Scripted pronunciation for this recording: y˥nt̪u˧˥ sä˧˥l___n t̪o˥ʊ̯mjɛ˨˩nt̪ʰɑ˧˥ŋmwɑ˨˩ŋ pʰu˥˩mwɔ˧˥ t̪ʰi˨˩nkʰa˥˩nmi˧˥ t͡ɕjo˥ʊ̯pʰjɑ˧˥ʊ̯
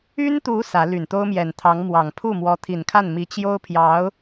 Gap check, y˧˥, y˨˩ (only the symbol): y˨˩